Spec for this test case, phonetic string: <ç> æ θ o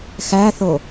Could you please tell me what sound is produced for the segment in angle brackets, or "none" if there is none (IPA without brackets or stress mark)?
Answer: x